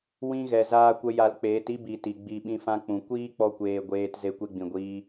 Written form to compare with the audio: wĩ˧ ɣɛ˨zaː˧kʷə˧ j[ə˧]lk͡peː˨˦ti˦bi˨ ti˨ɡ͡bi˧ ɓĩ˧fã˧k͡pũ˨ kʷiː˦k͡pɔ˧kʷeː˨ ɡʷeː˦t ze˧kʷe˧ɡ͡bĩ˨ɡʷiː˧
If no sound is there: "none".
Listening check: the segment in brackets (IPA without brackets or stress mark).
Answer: a˧